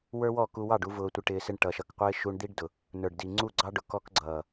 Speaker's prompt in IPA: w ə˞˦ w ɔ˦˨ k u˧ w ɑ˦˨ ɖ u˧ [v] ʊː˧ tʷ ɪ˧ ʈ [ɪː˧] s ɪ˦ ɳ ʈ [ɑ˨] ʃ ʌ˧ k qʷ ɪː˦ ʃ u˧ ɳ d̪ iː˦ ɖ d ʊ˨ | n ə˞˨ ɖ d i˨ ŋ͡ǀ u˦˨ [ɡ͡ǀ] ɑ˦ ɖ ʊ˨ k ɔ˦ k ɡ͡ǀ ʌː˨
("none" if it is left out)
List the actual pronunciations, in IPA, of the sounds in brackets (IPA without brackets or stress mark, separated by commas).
v, ɪː˧, ʌ˨, ɡ͡ǀ